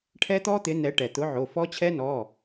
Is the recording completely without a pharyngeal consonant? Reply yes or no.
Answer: no